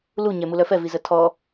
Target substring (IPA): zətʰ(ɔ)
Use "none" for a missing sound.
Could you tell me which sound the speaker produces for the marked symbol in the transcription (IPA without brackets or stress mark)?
ɔ